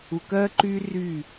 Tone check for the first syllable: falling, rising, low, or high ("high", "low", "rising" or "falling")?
low